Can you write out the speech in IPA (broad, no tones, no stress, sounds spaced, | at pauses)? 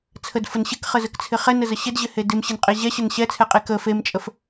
t͡sʰ ə d f ə n ɕ ɪ k χ ə z ə k t͡sʰ ɪ χ ɛ n ə z ə ɕ ɪ d ʑ ɪ h e d ɪ m ɕ ɪ n qʼ e ʑ ɛ ɕ ə n ɕ ɛ t͡sʰ ɛ qʼ e k ə f e m t͡ʃʼ ə f